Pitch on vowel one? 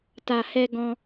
low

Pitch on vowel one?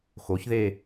rising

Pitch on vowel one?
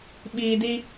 low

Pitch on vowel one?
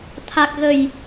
low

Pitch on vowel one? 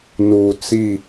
low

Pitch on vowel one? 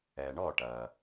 low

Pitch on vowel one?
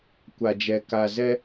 low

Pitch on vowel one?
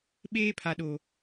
high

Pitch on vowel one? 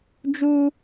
high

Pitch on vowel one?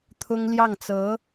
high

